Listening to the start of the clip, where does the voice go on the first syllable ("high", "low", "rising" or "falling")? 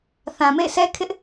low